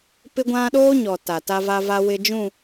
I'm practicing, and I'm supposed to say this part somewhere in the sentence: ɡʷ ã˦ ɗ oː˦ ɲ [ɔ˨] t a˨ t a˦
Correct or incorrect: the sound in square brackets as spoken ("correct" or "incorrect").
correct